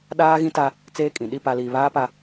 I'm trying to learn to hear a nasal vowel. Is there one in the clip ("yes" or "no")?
yes